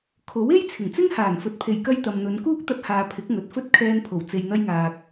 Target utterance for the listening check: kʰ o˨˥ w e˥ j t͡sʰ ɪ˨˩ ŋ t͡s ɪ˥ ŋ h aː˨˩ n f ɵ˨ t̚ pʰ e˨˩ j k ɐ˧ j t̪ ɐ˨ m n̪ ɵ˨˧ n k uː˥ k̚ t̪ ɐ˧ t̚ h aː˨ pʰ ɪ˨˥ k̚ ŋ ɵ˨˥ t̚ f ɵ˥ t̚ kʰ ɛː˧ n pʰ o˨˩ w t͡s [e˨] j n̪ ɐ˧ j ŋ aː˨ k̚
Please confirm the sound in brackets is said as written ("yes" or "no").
yes